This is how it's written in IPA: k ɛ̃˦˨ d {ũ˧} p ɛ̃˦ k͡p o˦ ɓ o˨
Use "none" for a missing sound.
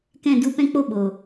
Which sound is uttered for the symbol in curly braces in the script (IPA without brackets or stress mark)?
u˧